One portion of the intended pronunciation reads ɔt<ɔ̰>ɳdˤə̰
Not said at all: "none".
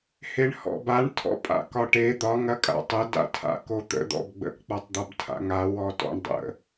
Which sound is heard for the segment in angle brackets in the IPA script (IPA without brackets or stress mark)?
ɔ̰